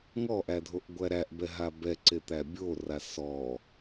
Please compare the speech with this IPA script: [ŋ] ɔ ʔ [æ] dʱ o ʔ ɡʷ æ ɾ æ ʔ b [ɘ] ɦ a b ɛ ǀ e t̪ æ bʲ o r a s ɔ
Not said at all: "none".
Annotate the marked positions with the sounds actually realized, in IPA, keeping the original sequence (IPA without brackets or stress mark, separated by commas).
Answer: ŋ, æ, ɛ